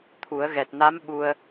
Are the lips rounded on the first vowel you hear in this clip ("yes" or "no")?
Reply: yes